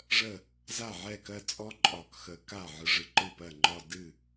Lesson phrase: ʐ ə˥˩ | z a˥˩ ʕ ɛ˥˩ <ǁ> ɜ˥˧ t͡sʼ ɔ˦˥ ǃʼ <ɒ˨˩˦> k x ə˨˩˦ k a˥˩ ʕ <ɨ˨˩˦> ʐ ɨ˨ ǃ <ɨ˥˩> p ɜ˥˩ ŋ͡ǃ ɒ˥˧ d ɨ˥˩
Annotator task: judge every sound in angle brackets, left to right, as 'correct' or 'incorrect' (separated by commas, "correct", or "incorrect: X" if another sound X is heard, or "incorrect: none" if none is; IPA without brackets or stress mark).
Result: incorrect: k, correct, incorrect: ɨ˨, correct